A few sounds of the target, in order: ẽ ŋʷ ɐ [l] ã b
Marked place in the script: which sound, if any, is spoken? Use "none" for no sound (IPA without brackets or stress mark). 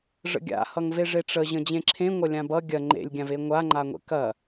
lʲ